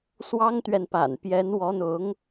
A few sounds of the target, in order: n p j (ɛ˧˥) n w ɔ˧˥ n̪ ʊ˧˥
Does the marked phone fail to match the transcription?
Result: no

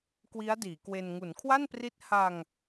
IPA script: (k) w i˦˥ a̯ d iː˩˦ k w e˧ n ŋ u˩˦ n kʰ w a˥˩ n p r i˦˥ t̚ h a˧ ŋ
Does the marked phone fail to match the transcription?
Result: no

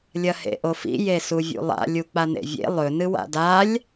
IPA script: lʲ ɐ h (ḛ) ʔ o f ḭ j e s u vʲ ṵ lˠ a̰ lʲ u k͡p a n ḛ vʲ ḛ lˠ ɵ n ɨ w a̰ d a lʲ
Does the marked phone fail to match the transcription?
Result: no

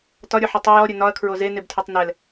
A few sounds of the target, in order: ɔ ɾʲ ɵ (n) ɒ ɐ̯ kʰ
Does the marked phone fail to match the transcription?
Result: no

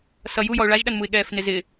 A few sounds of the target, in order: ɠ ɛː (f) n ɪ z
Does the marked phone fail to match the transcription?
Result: no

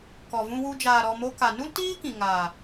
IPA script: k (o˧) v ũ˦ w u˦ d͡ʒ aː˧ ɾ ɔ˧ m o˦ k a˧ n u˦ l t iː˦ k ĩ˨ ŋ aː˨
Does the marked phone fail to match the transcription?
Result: yes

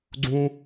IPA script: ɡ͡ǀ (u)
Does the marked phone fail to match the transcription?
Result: yes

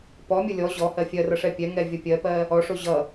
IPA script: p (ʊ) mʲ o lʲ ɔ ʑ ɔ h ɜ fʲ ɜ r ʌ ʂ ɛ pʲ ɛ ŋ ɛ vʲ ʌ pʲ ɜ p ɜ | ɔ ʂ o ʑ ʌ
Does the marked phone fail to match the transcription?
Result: yes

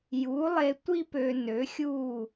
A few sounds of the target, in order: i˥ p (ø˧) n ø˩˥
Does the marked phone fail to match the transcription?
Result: no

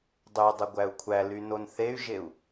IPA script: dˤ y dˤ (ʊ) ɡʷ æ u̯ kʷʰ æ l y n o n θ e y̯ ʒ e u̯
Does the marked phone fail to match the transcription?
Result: yes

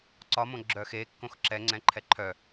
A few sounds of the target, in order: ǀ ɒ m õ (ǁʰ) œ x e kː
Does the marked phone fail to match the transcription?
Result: yes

